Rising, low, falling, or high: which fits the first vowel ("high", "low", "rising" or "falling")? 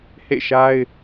falling